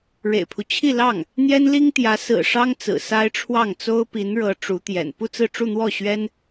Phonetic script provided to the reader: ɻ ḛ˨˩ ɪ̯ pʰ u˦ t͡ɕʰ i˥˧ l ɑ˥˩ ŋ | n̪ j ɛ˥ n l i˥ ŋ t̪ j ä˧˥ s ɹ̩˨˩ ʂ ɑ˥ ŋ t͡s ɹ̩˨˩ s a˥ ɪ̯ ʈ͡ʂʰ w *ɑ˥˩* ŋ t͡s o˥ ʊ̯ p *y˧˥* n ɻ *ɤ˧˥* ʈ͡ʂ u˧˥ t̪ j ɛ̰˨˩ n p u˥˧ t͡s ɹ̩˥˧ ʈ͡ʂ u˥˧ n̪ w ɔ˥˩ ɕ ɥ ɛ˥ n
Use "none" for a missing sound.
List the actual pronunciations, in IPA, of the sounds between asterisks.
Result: ɑ˥˩, i˧˥, ɤ˧˥

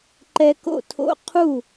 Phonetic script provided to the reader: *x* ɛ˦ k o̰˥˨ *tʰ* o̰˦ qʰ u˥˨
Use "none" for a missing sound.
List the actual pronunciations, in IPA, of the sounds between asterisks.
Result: ǃ, tʰ

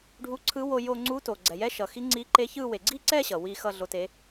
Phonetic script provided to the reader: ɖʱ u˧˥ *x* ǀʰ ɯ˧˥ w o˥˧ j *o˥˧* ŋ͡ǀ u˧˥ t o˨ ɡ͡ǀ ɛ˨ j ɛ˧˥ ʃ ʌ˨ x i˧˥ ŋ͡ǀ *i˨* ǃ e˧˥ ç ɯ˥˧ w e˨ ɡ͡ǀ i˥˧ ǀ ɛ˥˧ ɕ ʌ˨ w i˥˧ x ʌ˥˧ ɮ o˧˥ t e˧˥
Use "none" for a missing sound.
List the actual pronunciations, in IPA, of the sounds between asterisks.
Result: none, o˥˧, i˧˥

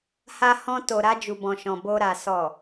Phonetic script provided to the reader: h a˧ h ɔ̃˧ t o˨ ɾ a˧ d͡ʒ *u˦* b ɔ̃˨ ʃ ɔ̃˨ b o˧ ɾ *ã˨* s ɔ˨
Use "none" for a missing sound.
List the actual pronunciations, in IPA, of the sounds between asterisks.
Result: u˨, a˨

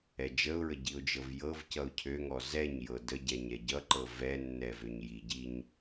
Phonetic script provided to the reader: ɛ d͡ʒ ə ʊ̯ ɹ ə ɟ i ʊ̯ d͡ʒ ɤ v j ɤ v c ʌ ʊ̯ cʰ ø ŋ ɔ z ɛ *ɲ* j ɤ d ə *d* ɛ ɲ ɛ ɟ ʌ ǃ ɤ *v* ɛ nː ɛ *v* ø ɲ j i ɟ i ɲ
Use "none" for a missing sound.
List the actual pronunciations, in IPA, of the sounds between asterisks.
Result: ɲ, ɟ, v, v

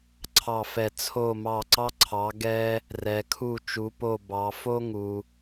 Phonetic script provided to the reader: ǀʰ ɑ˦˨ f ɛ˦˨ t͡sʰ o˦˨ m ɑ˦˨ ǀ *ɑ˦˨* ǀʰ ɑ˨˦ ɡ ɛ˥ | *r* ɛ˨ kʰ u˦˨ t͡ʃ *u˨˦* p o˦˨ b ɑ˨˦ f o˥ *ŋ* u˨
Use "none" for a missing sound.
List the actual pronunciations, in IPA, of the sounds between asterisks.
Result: ɑ˥, r, u˨˦, ŋ

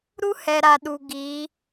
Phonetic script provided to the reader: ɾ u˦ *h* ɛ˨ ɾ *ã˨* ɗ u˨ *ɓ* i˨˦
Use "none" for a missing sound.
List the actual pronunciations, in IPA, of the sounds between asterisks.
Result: h, a˨, ɡ

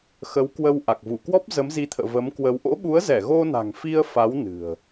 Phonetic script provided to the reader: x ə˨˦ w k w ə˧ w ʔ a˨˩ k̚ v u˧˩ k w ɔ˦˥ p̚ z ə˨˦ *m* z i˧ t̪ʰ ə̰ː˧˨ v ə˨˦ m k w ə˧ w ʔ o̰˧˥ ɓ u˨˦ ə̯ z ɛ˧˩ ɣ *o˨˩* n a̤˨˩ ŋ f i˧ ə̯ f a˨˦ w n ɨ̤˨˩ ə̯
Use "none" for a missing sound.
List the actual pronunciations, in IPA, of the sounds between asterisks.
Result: m, o˧

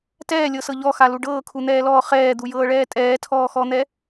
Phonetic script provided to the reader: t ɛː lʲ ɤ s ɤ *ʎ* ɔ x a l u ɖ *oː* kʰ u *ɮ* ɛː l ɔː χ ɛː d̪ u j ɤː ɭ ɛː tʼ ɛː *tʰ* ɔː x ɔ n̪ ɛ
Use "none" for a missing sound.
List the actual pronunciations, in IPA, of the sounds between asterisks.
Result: ʎ, ɤː, n̪, tʰ

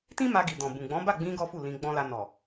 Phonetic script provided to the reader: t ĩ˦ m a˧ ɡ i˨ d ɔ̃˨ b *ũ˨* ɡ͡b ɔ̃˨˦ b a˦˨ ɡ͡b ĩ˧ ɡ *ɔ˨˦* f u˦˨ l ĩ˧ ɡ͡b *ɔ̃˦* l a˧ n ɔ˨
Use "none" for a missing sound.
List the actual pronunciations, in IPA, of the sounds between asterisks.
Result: ũ˨, ɔ˦, ɔ̃˦

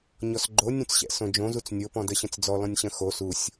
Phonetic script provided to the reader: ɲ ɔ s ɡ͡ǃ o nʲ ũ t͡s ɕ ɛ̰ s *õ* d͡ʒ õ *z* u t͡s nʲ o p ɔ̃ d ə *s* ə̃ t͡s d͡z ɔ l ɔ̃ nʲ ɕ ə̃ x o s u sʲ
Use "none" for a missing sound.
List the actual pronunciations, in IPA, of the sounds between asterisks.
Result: õ, z, ɕ

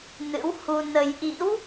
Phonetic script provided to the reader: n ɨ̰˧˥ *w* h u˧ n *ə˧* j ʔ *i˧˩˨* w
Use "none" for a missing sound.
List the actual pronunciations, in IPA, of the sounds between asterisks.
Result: w, ə˧, ḭ˧˥

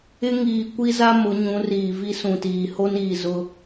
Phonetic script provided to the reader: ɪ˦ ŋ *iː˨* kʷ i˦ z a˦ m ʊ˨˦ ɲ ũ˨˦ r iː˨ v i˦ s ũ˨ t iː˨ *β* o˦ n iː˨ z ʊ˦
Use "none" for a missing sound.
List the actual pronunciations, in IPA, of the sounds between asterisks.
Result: iː˨, h

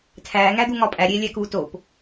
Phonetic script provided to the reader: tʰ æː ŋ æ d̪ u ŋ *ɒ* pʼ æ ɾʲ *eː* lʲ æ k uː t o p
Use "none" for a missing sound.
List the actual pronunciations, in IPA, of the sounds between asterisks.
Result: ɒ, eː

